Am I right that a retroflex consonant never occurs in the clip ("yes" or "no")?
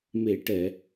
no